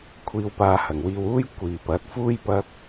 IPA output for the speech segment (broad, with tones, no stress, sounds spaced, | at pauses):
kʷʰ iː˧ w p aː˧ h ɐ˨˩ ŋ w iː˧ w uː˥ j kʷ iː˨ p ɐ˨˥ t̚ f uː˥ j p ɐ˥ k̚